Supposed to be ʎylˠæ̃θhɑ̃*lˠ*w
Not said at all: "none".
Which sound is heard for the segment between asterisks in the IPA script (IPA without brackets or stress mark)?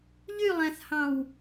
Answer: none